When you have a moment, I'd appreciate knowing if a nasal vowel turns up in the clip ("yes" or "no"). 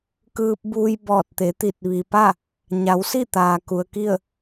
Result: no